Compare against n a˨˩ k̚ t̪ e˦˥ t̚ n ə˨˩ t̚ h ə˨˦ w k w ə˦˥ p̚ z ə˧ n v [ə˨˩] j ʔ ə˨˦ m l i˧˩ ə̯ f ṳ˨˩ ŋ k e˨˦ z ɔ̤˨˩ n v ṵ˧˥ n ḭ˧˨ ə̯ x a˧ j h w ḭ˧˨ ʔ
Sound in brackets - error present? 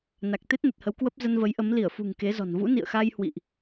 yes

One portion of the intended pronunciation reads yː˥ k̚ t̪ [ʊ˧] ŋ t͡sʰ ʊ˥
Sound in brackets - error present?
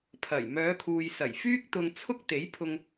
no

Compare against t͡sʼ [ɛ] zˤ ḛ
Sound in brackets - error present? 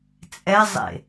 no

